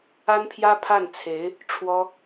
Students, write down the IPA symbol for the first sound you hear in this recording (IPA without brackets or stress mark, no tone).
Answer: a